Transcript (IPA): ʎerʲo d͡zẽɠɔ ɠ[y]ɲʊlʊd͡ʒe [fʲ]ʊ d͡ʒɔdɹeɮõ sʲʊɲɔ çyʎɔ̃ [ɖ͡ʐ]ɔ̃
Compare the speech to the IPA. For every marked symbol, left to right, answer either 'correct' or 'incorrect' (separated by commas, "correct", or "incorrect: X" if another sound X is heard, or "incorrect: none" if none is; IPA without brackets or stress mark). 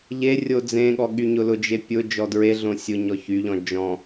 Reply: correct, incorrect: pʲ, incorrect: d͡ʒ